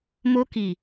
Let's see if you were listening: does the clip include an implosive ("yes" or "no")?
no